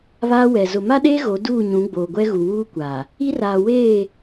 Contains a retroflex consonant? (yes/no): no